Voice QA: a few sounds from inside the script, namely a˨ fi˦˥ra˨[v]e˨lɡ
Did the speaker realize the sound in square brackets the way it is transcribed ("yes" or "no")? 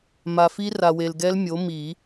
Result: no